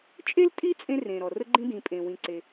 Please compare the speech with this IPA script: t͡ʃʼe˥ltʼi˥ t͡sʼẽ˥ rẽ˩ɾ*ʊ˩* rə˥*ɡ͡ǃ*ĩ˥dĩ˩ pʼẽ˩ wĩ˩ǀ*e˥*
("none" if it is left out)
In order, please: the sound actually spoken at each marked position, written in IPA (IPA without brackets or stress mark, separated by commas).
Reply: ɔ˩, ɡ͡ǃ, e˩